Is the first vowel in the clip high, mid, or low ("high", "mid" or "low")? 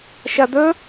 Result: low